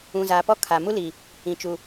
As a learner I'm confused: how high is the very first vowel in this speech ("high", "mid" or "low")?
high